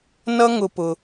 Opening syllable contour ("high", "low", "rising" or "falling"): high